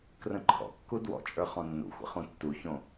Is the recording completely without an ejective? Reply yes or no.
no